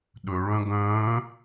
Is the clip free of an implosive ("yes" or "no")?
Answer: no